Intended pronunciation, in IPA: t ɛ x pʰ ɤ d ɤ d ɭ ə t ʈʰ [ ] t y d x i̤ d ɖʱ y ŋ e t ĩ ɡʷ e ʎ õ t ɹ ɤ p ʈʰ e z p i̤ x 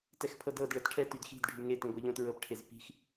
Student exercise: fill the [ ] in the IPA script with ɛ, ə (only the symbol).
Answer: ɛ